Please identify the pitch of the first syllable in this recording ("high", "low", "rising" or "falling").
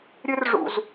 high